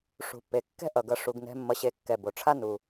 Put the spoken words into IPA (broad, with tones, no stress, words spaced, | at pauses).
ʂṳ˨pːe˨kːɛ̤˦ ʔʌ˨ɡʌ˧ ʂu˧ɡnɛ̤˦ mːʌ˧ɕe˧ kːɛ˨bo˨ʈ͡ʂʰa˦ nu˧